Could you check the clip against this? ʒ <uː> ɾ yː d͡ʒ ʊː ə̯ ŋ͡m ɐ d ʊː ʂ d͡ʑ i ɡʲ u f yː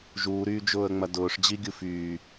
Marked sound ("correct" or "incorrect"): correct